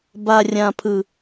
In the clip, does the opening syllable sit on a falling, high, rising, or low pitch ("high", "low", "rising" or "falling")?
low